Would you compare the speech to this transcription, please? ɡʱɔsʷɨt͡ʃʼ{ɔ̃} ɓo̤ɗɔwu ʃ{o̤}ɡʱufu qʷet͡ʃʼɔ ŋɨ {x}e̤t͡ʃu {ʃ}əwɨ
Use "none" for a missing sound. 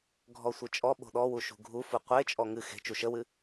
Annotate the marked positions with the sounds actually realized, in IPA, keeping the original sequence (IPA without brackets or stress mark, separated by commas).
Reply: ɔ, ṳ, x, ʃ